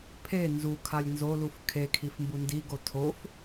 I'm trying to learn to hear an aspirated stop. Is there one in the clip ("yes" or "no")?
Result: yes